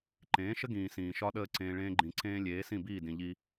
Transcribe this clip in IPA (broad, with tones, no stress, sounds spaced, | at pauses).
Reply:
ǃ ẽː˨˦ ʃ ə˦ ɡ ĩː˨ s ĩː˨ ʃ ɒ˦ ɗ əː˦ ǀ ẽː˧ ɭ ẽː˧ ɡ͡ǃ ĩ˨ ǀ ẽː˧ lʲ eː˨˦ s ĩ˦˨ b iː˦˨ d ĩ˨ ʎ i˧